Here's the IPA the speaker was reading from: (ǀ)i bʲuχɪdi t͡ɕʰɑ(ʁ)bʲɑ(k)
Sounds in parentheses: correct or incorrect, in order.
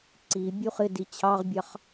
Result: correct, correct, incorrect: χ

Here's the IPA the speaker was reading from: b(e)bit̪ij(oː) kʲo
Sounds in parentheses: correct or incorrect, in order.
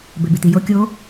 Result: correct, incorrect: o

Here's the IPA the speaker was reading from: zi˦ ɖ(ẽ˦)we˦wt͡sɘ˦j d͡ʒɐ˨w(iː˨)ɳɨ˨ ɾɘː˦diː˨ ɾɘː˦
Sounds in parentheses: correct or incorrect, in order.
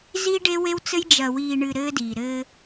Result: incorrect: e˦, correct

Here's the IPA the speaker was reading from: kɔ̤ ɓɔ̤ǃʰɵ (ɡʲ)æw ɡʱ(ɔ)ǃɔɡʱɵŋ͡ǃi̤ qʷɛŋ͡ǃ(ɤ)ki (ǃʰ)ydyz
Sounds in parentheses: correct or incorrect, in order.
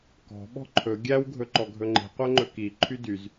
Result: correct, incorrect: ɵ, incorrect: ɵ, correct

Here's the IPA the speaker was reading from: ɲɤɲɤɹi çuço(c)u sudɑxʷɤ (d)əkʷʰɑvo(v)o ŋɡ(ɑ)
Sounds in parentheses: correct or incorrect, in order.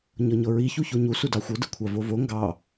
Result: incorrect: ɲ, correct, correct, correct

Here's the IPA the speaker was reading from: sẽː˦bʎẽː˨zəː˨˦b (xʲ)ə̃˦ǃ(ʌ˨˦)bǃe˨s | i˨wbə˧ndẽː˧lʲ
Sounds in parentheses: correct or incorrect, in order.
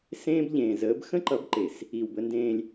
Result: incorrect: x, correct

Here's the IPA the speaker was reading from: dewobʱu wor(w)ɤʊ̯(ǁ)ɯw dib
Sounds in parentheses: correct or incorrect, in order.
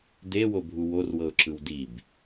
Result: correct, correct

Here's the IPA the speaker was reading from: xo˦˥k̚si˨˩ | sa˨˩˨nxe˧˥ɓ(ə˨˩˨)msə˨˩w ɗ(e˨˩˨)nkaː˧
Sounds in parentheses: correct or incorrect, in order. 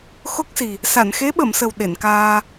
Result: correct, correct

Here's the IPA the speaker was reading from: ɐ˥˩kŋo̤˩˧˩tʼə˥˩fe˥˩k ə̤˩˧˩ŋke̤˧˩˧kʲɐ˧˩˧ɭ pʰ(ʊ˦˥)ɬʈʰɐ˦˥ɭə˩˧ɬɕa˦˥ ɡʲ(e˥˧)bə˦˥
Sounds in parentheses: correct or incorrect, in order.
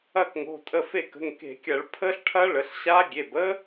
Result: incorrect: ə˦˥, incorrect: e˩˧˩

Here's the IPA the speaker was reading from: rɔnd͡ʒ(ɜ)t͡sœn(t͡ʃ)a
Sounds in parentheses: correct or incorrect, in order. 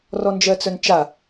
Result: correct, correct

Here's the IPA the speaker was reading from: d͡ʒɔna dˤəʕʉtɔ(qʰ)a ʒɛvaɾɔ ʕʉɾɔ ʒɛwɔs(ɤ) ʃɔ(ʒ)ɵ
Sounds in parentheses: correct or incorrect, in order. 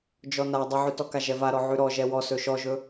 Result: incorrect: k, incorrect: ɵ, correct

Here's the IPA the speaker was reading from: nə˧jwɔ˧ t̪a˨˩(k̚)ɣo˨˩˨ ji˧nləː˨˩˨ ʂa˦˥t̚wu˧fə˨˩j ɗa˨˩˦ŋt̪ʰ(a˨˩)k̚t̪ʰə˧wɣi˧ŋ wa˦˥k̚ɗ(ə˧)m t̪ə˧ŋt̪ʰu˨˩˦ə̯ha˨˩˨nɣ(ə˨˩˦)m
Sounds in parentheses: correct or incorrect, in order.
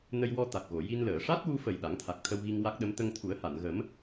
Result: correct, correct, incorrect: ə˧˥, correct

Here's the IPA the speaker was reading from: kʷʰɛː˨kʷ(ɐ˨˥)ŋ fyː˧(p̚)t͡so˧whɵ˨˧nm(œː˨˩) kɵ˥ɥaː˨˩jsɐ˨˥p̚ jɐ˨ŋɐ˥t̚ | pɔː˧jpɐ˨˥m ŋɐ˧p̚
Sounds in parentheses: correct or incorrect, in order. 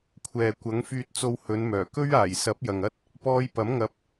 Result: correct, incorrect: t̚, correct

